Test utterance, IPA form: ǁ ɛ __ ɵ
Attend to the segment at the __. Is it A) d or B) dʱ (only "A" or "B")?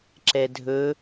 B